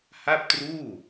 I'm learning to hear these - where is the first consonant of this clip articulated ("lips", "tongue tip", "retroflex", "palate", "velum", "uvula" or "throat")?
throat